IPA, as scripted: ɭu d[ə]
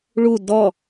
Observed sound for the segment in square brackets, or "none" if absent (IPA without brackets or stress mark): ɔ